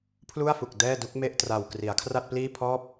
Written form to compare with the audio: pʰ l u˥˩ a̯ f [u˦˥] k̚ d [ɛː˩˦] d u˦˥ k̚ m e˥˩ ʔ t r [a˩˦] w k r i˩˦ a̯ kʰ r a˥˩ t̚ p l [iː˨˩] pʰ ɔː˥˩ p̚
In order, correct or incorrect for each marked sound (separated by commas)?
incorrect, incorrect, incorrect, incorrect